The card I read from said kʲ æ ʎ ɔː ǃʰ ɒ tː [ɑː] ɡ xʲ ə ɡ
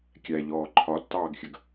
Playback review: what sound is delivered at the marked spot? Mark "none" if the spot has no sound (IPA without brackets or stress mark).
ɑː